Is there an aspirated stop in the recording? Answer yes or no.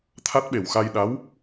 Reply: yes